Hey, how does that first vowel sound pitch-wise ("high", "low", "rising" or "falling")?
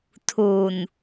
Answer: low